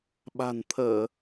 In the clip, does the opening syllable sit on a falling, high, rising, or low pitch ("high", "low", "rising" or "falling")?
low